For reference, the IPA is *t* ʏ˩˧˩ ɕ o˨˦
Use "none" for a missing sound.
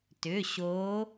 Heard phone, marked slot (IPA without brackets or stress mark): t